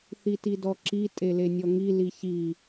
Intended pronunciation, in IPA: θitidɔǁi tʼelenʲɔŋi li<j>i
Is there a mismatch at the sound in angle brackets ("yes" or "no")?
yes